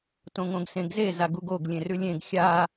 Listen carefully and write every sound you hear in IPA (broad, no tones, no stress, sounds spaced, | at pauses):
t õ ŋ õ ɡ s ẽ ɡ z e z a ɡ u ɡ o ɡ lʲ ẽ r ʉ lʲ ẽ ɡ xʲ a